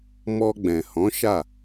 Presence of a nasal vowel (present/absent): present